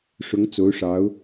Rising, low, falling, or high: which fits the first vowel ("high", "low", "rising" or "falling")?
rising